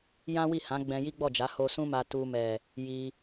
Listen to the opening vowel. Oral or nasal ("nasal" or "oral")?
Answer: nasal